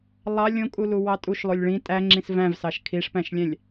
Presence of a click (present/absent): present